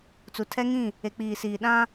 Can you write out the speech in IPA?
t͡su˨tʰɛ˦ŋĩ˦˨ | e˨k͡piː˨siː˨ ɗã˦

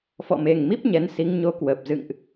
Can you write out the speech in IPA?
fɔ̰˧˨me˨˩ŋmi˦˥p̚ ɲɛ˨˦nsi˨˦ŋ ɲo˨˦ kwə˨˩p̚ zɨ̰˧˨ŋʔ

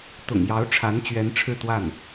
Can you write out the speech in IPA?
t̪ʊ̰˨˩ŋjɑ˧˥ʊ̯ʈ͡ʂʰa˧˥nt͡ɕɥɛ˧˥n ʈ͡ʂʰɻ̩˥˧t̪wa˥˩n

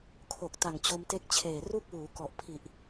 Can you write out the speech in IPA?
kʰo˨˩k̚ ta˨˩ŋt͡ɕo˧mte˦˥k̚ t͡ɕʰeː˨˩ru˥˩k̚wuː˩˦ kɔ˨˩ʔpʰi˨˩ʔ

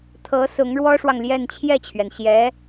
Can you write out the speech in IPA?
t̪ʰɤ˧˥ sʊ˧˥ŋɻwɔ˥ʂwɑ˨ŋljɛ˥˧n t͡ɕʰjɛ˥˩t͡ɕʰɥɛ˩nɕjɛ˧˥

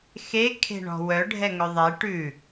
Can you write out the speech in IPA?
xe kʰe̤ɳɔ̤wœ ɖʱɛŋɵðˤe ʈʉ

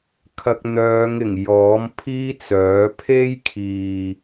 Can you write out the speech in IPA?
kʰɐ˧k̚n̪œː˨˧ŋɪ˨˩ŋ jɔː˨˥m pʰiː˥t͡sœː˨˥ pʰe˥jkʰiː˨

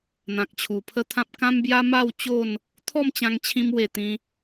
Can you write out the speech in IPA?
n̪ã˨k̚t͡ɕʰu˨˩ pʰə˦t̪ʰã˦p̚ kã˦mbja˦ma˥˧w t͡ɕo˥˧n | t̪ʰɔ˥˧m t͡ɕã˧ŋt͡ɕʰĩ˧m we˧ t̪ĩ˧

